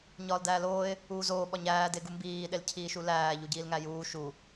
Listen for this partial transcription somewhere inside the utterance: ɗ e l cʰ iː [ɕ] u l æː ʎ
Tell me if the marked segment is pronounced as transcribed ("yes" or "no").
no